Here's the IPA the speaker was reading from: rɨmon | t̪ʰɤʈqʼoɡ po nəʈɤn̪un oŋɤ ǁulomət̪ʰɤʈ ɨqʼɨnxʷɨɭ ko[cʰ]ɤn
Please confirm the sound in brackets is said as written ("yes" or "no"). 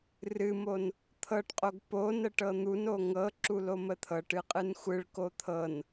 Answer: no